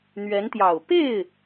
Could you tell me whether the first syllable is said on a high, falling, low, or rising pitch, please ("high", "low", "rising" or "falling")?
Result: rising